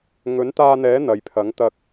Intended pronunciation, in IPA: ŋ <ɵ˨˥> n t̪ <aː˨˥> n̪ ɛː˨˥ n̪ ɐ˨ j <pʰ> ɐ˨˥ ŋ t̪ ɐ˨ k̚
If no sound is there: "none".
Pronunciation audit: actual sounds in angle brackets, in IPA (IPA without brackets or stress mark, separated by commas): ɵ˨˥, aː˧, pʰ